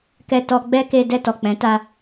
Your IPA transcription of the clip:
k ɛ˨ t ɔ˨ ɡ͡b ɛ˧ k e˧ d ɛ˧ t ɔ˨ k͡p ɛ̃˨˦ t a˧

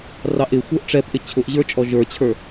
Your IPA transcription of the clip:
r ɑ ʔ ɪ xʷ ə˞ ʔ ʈ͡ʂ ɛ p ʔ ɪ t͡ɕʰ ʊ ʔ ʑ ə˞ t͡ʃʼ ɔ ʒ ə˞ t͡ɕʰ ə˞

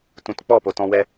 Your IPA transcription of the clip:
t ũ˨ t k͡p ɔ˦˨ p o˨ t ɔ̃˧ w ɛ˧

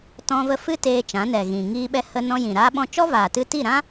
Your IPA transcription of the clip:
t ɔ̃˧ v ə˧ f ɨ˦ t eː˧ t͡ʃ ã˨˦ n ɛ˨ ɣ ĩ˨ ŋ iː˧ ɓ ɛ˧ h ə˧ n ɔ̃˧ j ĩ˨ ɾ aː˦ ɓ ɔ̃˦ t͡ʃ ɔ˦ v aː˨ t ɨ˧ t i˦˨ ɾ ã˦

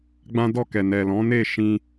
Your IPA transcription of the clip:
ɡ͡b ã˦ d ɔ˦˨ k ɛ˨ n ɛ˨ l ɔ̃˨˦ n e˦˨ ʃ ĩ˧

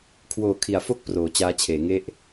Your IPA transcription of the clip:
kʰ w oː˨˩ kʰ i˩˦ a̯ f o˥˩ k̚ p r oː˩˦ t͡ɕ aː˦˥ t͡ɕʰ eː˩˦ ŋ e˥˩ ʔ

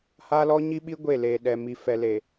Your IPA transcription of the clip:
h aː˦ l ɔ˦ ɲ i˦ ɓ i˦ ɡʷ e˦˨ l eː˨ ɗ ɛ˨ m i˨ f ɛ˨ l e˨

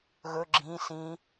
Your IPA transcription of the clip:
ɣ ɵ ɡ͡ǁ ĩ s ĩ

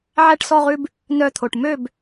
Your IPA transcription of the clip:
ʕ æ˥˨ ʈ s ɔ˥˨ ʁ ʉ˦ b | n œ˧˩ t̪ʰ o˩ ʈ m ø˥˨ b

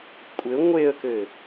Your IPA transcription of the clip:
kʷʼ ɘ ŋʷ e ə̯ k ɘ

